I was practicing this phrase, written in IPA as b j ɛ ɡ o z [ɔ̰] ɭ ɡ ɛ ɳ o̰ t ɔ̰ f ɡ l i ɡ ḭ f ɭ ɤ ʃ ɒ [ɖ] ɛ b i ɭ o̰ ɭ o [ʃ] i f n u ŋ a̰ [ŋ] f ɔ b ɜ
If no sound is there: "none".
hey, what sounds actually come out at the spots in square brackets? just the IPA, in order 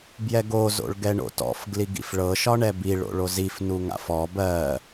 o̰, ɳ, z, none

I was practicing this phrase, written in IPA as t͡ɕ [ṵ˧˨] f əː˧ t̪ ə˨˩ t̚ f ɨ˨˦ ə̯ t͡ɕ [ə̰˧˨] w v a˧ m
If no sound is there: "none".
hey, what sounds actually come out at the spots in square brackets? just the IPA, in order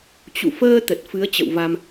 ṵ˧˨, ə̰˧˨

